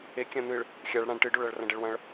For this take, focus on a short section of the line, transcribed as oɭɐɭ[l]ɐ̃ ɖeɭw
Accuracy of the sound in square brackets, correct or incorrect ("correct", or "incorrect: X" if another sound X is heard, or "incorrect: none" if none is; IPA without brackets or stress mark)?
incorrect: r